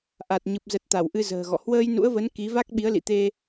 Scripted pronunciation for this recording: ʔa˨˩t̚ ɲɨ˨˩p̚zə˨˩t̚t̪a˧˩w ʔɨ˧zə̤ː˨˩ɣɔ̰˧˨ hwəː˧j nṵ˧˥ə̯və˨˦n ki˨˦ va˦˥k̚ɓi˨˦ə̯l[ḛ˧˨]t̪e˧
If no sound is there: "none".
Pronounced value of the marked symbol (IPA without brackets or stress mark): ḭ˧˨